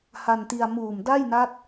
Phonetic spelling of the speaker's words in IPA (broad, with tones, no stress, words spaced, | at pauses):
ha˧nti˧a̯ muː˨˩mda˥˩jna˦˥t̚